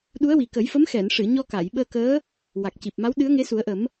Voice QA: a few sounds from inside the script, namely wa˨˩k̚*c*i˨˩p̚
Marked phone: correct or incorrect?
correct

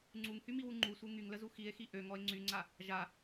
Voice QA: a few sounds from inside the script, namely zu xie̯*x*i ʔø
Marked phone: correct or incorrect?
correct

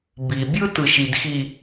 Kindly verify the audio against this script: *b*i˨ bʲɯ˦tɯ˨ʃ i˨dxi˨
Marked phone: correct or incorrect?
correct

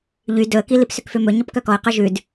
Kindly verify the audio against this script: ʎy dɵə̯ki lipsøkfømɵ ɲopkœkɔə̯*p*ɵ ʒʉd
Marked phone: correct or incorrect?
incorrect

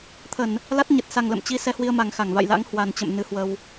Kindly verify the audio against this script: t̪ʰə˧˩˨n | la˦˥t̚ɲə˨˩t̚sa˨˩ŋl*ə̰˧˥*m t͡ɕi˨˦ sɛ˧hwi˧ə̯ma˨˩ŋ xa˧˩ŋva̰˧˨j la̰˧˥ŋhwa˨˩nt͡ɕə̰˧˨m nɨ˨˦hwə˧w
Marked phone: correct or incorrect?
incorrect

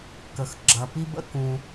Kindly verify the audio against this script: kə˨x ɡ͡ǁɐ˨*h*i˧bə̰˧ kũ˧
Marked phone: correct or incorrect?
incorrect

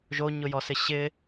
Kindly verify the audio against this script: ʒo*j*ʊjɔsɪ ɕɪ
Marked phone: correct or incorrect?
incorrect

